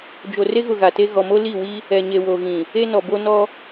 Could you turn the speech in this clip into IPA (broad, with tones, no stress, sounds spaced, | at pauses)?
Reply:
d͡ʒ o˨ r e˦ ɣ ʊ˨ ɣ a˨ t e˦ ɣ ɔ˨ m o˦ l i˦˨ w i˦ | ɛ˨ ɲ e˨ w o˨ ɣ ĩ˨ | e˦ n ɔ˨ b o˦ n ɔ˦